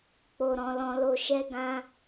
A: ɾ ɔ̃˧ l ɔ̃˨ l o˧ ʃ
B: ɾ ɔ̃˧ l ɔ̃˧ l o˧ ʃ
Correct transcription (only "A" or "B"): B